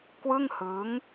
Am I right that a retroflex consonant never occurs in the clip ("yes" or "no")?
yes